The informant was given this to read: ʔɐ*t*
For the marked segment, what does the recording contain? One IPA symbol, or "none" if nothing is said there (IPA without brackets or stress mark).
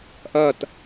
t